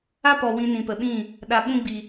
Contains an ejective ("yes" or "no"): no